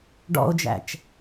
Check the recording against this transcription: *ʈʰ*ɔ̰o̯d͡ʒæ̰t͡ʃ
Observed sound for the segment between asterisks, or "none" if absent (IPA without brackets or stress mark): ɖ